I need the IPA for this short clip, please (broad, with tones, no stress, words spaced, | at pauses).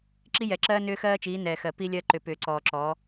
ǁi˦jɛ˨ǁɜː˦ nʏː˦xɜː˦t͡ʃiː˨˦ nɛː˨xɜ˨ pi˦lʲɜ˦ǃʏ˨ pʏː˨ǀɔː˨ǁɔ˨˦